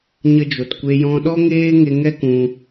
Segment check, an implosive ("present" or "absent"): present